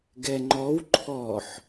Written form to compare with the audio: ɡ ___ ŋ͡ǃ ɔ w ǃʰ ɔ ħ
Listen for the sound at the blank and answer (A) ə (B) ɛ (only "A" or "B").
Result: B